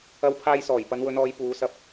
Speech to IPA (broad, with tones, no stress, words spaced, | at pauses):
ɐ˧w pʰaː˧jsɔː˨˩j pɐ˨˧nwɵ˨˧nɔː˨˧j puː˨˧sɐ˧p̚